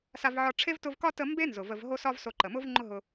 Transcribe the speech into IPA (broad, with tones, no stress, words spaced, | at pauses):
sa˦vʕɒ˦ ʈ͡ʂʰe˥vtʊ˦vkɒ˥tə˦ mbe˥nzʊ˩və˨v ɦo˦sɒ˦v so˨ǃə˩mʊ˦v ŋ͡ǃʊ˦ɦʊ˨